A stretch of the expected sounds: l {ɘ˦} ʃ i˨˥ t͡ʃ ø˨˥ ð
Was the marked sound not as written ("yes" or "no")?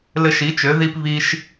no